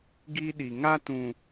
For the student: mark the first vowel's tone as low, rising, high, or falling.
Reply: high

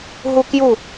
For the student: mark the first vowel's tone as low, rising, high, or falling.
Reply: high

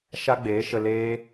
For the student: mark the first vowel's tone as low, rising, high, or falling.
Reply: high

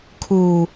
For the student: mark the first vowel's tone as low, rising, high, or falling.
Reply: low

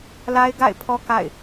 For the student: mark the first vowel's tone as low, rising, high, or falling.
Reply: high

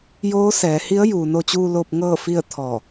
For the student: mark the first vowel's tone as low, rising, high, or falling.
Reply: rising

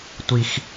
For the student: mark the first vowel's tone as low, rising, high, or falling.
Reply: low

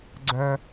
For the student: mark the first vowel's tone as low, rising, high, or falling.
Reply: low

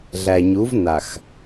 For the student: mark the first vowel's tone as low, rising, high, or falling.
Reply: low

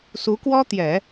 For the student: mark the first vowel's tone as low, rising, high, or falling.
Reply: rising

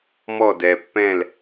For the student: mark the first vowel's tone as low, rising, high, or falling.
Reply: falling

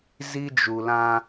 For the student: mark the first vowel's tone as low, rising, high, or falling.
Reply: high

